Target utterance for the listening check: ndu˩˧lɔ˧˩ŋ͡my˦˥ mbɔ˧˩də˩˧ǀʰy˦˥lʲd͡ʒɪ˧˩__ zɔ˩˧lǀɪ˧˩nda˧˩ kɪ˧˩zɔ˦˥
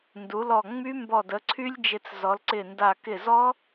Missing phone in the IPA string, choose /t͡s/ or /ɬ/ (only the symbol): t͡s